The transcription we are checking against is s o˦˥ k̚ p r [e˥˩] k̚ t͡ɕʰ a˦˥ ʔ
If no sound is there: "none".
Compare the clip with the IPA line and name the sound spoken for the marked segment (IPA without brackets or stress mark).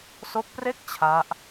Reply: e˥˩